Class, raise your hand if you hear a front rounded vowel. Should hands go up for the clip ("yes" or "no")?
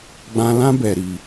no